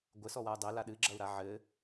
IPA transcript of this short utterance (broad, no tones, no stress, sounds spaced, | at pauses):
ɡʷ ɘ s ɔ w a u̯ dˤ e l a ɗ ɨ ɡ͡ǁ ɐ u̯ ɾ a ʕ ɘ